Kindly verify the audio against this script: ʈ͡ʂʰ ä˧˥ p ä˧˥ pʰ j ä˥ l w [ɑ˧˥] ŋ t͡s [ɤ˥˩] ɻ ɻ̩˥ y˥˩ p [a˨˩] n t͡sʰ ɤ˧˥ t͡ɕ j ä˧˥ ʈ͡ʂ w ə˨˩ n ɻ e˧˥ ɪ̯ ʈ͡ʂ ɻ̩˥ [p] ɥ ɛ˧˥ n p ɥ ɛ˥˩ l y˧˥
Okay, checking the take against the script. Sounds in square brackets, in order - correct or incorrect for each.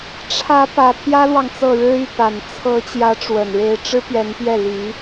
incorrect: ɑ˨, correct, correct, correct

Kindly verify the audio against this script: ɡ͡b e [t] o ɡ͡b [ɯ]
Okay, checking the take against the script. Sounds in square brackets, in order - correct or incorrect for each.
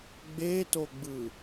correct, correct

